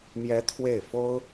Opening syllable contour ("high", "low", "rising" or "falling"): rising